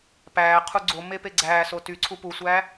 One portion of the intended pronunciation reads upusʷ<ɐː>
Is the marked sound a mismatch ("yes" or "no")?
yes